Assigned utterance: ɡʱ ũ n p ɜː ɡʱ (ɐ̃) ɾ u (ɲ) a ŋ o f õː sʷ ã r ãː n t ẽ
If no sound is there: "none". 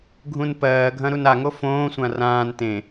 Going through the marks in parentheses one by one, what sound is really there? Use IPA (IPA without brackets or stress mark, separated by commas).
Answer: ɐ̃, n